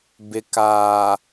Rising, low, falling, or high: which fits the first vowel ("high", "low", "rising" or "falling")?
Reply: low